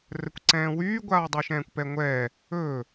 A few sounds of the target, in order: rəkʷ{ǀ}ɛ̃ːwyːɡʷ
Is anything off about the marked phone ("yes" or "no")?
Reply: no